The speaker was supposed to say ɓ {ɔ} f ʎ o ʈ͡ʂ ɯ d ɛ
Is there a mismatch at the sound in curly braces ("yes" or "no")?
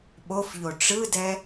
yes